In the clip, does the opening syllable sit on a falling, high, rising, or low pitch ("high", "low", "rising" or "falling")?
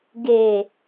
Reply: low